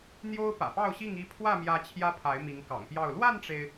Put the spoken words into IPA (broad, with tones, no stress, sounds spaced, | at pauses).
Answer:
n̪ j o˦ ʊ̯ p ä̰˨˩ p ɑ˥˨ ʊ̯ ɕ i˥˨ ŋ i˥˨ pʰ w ä˥˨ m j ä˨˦ t͡ɕʰ j ä˦ pʰ a˨˦ ɪ̯ m i˨˦ ŋ k ɑ̰˨˩ ŋ p j ɑ˥˨ ʊ̯ l w a˥˨ n ʈ͡ʂ e˩ ɪ̯